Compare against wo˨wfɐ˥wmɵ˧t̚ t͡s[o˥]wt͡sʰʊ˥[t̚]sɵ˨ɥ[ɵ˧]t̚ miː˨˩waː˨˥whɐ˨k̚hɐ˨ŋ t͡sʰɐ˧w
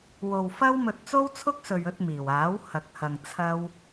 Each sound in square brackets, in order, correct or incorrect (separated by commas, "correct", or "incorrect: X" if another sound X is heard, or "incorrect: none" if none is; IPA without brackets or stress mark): correct, incorrect: k̚, correct